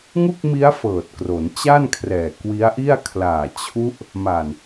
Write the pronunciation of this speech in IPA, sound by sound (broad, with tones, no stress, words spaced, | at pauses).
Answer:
ŋu˥˩k̚mi˦˥a̯ fɤː˨˩t̚kro˩˦n t͡ɕa˥˩nkʰrɛː˨˩ kwi˦˥a̯ʔi˥˩a̯ kʰlaː˨˩t͡ɕʰu˦˥ʔ | ma˨˩n